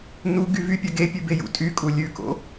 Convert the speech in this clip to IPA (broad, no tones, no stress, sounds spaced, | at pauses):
n u ɡ y v y pʲ œ ɡ e pʲ ʉ b e j ṵ tʼ y kʼ u lʲ ʉ k o̰